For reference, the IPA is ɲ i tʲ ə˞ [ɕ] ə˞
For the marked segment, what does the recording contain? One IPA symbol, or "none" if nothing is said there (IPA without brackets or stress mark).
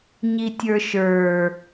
ʃ